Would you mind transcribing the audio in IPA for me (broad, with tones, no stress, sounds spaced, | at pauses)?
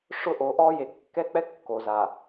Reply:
ʂ ʊ˦ ʔ o˨˦ ʔ ɔ˦ j e˨ kː ɛ˦ k͡p ɛ˦ kː o˨ z a˨